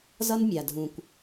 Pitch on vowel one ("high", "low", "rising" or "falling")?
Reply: high